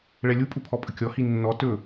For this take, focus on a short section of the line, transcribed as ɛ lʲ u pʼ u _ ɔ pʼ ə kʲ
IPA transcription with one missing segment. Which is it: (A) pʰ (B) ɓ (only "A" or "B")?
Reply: A